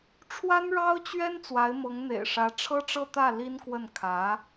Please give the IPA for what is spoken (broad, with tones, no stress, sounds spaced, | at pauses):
ʈ͡ʂʰ w a˥ n ɻ ɑ˥ ʊ̯ t͡ɕ ɥ ɛ˥ n t͡s w a˧˥ ɪ̯ m ɤ˧˥ ŋ n̪ ḛ˨˩ ɪ̯ ʂ ä˧˥ ʈ͡ʂʰ ɤ˥ ʈ͡ʂ ɤ˥˧ t̪ ä˥˩ l i˥ n k w ə˥˩ n kʰ ä˧˥